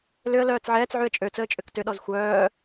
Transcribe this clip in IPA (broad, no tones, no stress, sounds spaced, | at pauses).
l ʏ ə̯ l œː t͡s ʕ ɛː t͡s ʕ y ə̯ t͡ʃʼ ø t͡s əː t͡ʃʼ ʏ k t ʏ ɗ ɔ z xʷ œː